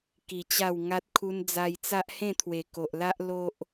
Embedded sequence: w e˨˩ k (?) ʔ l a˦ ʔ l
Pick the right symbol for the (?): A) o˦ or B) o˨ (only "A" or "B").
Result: B